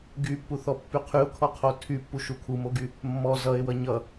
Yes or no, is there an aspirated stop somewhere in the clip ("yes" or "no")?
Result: yes